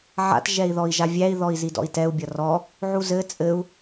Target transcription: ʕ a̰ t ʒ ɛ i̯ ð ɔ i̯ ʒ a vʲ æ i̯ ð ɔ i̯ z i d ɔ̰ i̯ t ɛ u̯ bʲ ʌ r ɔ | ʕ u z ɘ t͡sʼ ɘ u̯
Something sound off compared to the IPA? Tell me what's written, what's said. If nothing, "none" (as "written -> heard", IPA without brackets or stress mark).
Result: none